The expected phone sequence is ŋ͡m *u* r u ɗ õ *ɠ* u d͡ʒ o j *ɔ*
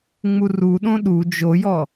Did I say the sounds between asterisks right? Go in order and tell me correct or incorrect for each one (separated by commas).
correct, incorrect, correct